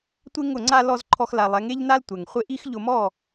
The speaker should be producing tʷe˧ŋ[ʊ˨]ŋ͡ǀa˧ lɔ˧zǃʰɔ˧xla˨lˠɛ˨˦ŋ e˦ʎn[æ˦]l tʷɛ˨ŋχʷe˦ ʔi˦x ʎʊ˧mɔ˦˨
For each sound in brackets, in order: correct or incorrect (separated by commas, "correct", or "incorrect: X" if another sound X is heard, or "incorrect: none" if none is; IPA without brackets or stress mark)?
correct, incorrect: a˦